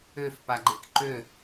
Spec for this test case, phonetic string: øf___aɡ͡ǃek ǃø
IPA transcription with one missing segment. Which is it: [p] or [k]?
p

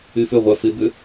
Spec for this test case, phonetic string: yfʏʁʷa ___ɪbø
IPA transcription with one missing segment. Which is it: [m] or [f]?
f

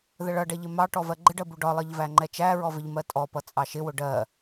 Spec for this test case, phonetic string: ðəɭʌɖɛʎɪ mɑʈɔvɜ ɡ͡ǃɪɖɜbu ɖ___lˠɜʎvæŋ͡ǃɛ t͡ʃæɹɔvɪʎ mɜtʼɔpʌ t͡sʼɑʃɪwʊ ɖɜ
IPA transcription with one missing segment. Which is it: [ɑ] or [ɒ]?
ɒ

